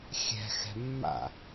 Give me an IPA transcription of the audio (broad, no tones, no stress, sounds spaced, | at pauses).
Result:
xʲ ɛ̤ x ɛ̤ mː a̰